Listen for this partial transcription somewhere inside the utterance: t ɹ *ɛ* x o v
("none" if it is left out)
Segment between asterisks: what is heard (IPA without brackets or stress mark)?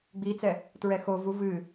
ɛ